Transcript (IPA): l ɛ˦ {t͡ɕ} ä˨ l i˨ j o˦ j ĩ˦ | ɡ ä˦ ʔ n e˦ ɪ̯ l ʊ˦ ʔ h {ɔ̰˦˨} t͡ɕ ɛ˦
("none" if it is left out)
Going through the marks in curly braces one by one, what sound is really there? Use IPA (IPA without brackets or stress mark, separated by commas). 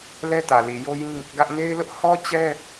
t, ɔ˦